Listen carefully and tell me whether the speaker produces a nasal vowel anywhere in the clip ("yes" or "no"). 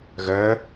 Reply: no